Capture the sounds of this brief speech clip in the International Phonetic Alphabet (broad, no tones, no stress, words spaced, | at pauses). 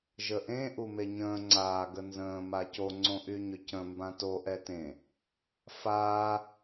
ʒəʔẽ ʔumeɲə̃ː ŋ͡ǀaː ɡənzə̃ː maco ŋ͡ǀõʔyɲʏcə̃ mbãto ʔɛtẽ | faː